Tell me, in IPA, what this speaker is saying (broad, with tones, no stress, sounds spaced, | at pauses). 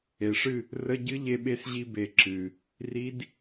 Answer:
e˨˩ ʂ ɨ˥˨ | r ə˧˥˧ ɟ ɨ˦˥ ʎ e˧ ɓ e˧ s ʑ i˧ b e˨˩ ǁ ɨ˨˩ | r i˦˥ d